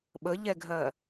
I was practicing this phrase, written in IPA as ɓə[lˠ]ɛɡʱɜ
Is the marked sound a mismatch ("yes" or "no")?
yes